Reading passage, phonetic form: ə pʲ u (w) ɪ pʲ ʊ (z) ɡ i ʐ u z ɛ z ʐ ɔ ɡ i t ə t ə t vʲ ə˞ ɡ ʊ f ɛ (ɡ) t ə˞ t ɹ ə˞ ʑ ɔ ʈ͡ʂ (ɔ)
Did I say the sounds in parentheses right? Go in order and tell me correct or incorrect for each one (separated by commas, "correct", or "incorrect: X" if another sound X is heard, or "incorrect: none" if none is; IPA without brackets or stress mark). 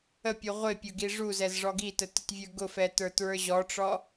incorrect: ʁʷ, incorrect: none, incorrect: none, correct